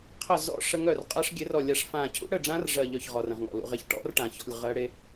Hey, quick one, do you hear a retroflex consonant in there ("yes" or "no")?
yes